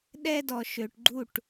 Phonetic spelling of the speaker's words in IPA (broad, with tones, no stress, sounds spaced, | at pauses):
ɗ ɛ˦ d ɔ˨ ʃ ø˨ ʈ ɡ͡ǃ u˦˨ ʈ